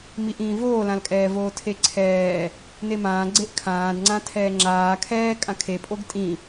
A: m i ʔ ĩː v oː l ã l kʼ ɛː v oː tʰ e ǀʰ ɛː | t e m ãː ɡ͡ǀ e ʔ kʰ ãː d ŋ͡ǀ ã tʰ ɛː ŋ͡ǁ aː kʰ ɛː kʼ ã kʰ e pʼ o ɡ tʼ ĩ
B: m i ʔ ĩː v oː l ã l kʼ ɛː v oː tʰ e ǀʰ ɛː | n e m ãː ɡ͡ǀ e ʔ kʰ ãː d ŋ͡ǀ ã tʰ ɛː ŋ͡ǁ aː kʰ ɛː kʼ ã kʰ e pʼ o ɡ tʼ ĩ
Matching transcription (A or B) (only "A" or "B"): B